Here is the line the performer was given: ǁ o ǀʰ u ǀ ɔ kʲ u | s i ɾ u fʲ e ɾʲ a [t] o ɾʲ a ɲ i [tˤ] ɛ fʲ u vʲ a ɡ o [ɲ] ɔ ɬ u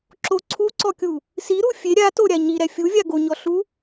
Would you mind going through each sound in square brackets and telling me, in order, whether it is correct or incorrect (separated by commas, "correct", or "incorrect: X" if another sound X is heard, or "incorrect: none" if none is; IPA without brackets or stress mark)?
correct, incorrect: ɾ, correct